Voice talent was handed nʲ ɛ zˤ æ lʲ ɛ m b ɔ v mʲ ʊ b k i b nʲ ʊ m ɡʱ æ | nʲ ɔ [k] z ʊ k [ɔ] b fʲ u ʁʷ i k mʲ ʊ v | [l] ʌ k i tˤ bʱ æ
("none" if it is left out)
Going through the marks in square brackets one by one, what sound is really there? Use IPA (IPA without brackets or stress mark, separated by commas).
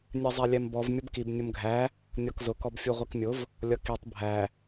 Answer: k, ɔ, lʲ